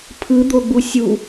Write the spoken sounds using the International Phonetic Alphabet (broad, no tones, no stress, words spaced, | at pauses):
pʰɯd̪oɡ͡bu sʲu